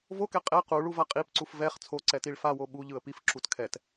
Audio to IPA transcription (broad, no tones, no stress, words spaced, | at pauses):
vokɛ qʼɛ quɭuva qʼipǀuf vɛχ t͡sʰoǀɛtiɭ fawo ɓuʎɯə̯ pifǁut kʰɛt